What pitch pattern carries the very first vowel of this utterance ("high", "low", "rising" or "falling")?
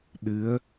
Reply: rising